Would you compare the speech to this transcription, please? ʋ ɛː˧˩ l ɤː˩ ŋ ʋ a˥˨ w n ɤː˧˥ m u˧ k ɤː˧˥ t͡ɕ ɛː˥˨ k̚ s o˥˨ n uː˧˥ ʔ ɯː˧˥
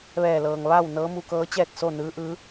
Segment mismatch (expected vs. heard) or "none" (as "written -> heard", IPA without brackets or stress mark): uː˧˥ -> ɯː˧˥